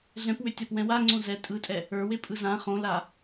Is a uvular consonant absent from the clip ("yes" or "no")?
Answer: no